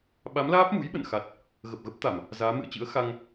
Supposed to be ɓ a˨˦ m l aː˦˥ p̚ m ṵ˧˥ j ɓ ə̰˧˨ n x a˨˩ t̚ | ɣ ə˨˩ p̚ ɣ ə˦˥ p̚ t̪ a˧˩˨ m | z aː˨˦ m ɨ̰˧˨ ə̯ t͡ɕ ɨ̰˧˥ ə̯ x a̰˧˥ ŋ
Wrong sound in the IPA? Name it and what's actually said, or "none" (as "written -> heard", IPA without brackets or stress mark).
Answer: a̰˧˥ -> a˧